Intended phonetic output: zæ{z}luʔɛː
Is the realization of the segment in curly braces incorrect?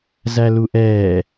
yes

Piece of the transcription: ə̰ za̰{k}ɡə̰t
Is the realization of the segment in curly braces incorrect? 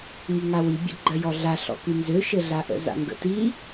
yes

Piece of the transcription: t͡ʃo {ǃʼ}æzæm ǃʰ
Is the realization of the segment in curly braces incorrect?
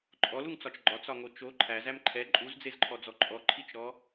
yes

